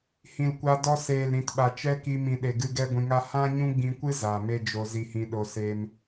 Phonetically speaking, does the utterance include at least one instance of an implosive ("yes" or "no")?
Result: yes